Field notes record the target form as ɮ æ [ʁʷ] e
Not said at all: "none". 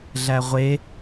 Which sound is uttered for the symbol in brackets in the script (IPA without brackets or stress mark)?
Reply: ʁʷ